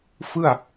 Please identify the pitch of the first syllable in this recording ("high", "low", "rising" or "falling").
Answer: falling